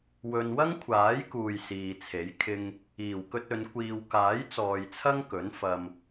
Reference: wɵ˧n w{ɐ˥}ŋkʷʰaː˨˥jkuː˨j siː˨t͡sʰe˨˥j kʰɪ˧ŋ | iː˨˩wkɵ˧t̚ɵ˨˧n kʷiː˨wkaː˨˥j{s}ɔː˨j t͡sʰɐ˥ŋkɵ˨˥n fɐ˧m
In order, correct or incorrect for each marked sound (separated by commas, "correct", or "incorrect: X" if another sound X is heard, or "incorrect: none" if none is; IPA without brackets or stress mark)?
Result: correct, incorrect: t͡s